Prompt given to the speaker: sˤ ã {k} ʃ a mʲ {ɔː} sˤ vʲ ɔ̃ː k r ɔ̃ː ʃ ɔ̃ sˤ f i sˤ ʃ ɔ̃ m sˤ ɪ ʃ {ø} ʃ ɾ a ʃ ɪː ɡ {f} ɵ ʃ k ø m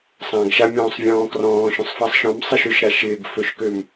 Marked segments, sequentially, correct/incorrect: incorrect: ɡ, incorrect: ɔ̃ː, correct, correct

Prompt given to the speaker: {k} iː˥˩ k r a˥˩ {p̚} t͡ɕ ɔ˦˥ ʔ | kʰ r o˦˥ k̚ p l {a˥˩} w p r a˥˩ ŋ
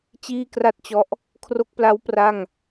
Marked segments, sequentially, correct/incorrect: incorrect: t͡ɕ, incorrect: t̚, incorrect: a˦˥

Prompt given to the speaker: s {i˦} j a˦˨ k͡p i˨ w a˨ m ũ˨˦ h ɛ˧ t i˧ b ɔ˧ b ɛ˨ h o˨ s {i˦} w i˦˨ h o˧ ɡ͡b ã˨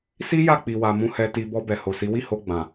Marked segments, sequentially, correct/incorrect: correct, incorrect: i˨˦

